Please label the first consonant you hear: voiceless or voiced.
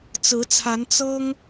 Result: voiceless